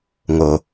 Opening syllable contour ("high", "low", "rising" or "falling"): low